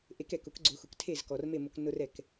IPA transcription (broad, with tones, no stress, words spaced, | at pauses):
ʔe˩˥kɛ˩kʊ˩˥k ɡ͡ǀʊ˩˥xʊ˩k tʰe˥˩zkɔ˩rme˥˩mʊ˧k nʊ˧r ɛ˩k